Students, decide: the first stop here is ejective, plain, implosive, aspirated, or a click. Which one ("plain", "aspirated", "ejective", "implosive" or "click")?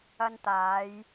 plain